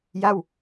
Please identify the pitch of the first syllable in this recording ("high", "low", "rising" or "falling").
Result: falling